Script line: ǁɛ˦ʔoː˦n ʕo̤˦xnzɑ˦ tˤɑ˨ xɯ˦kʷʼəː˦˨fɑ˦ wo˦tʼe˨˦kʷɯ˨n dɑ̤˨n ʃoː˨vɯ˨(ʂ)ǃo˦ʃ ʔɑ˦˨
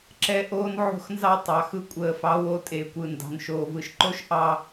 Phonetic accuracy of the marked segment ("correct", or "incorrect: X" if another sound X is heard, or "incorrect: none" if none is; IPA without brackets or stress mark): incorrect: ʃ